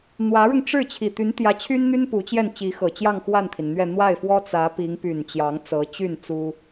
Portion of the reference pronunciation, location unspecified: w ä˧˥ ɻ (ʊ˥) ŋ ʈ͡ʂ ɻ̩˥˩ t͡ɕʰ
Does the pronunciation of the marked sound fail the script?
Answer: yes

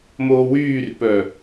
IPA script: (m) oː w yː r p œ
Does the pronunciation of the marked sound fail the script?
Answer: no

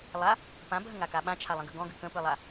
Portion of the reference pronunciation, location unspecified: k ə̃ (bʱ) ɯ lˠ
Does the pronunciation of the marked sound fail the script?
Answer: yes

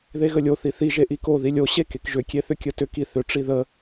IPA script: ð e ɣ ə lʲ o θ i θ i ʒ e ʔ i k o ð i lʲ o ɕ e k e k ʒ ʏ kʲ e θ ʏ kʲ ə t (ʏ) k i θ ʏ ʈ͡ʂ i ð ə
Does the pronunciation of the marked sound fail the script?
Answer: no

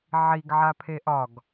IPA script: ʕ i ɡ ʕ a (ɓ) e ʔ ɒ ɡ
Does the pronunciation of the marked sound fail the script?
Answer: yes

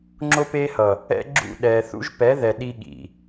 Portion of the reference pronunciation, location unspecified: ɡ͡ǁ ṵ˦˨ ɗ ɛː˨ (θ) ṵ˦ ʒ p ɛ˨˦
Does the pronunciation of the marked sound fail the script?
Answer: no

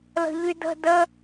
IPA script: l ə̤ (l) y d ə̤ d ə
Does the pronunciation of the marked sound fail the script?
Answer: yes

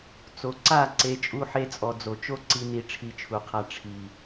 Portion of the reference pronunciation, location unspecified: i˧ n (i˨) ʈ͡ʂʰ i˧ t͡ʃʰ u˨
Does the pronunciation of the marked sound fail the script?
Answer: yes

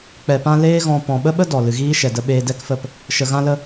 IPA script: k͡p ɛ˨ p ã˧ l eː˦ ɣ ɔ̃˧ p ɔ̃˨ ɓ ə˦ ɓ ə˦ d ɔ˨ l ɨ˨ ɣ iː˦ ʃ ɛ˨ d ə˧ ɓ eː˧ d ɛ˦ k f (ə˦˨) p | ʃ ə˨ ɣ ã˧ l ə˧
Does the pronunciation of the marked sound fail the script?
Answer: no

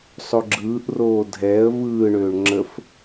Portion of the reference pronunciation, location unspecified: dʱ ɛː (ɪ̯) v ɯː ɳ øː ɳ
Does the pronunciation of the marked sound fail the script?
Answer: yes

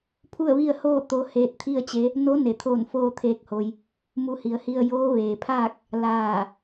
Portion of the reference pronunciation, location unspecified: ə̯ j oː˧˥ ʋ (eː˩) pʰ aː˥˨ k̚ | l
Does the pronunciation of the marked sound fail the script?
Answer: no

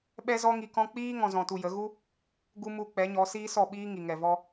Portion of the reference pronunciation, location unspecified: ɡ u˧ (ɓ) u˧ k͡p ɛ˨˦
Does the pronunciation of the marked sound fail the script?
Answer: yes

